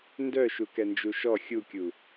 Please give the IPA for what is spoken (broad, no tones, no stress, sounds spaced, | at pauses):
n d œ ʃ u k ɛ n d͡ʒ u ʃ ɔ xʲ u kʲ u